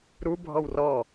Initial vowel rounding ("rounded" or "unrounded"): rounded